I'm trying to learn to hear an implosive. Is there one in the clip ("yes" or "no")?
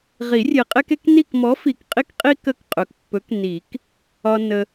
no